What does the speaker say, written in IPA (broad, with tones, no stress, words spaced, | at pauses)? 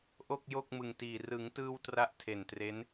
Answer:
ʔo˥˩k̚jo˥˩k̚mɯ˨˩ŋtiː˨˩ rɯ˩˦ŋtɯː˧w tra˦˥ʔtʰe˨˩ntre˦˥n